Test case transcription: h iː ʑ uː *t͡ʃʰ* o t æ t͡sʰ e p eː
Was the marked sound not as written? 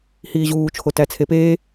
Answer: no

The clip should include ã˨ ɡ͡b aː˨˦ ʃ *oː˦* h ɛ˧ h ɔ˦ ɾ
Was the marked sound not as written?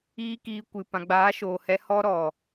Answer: yes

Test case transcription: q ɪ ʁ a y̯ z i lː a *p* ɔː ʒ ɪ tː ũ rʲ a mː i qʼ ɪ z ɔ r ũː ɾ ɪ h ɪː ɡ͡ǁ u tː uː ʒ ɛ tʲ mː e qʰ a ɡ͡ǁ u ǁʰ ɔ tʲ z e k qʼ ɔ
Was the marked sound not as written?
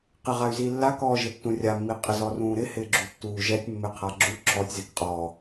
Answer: yes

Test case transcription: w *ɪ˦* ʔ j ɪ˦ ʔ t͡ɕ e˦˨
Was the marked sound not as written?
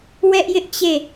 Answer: yes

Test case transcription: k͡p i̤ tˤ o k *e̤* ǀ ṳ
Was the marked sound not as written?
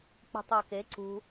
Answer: yes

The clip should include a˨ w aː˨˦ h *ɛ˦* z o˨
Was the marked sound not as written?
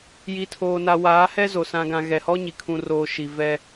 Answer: no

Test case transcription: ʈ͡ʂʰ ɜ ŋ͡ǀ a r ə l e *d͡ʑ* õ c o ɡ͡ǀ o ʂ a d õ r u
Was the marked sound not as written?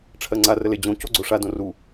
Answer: no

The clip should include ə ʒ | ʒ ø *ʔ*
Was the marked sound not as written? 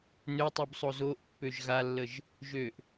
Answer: no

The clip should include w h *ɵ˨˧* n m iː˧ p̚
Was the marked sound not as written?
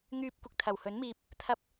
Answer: yes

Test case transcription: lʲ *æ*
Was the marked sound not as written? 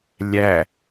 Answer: no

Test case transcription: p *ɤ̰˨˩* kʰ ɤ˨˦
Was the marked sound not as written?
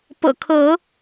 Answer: no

